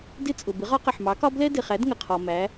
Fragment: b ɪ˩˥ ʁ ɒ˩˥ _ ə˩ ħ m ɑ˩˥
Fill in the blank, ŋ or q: q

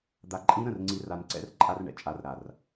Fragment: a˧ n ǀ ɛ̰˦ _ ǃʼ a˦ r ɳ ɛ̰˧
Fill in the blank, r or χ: r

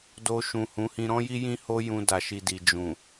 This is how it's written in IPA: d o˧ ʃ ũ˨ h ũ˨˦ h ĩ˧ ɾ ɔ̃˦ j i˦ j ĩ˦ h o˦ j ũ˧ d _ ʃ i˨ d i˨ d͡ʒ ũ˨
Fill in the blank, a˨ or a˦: a˨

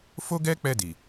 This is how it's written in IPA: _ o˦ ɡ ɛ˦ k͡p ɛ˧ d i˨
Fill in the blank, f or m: f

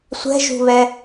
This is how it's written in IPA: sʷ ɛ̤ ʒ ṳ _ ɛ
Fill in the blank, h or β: β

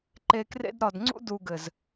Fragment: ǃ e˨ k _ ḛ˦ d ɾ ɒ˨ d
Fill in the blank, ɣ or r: r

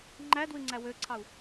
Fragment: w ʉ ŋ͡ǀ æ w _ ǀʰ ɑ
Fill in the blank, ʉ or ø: ø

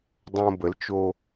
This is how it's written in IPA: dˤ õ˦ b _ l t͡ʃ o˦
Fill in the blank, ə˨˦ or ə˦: ə˨˦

